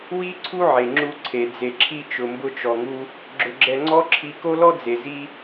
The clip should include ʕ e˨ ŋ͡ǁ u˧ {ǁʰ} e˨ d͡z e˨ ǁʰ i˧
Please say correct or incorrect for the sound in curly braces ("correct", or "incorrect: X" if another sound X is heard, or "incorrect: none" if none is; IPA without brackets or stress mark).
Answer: incorrect: ǀʰ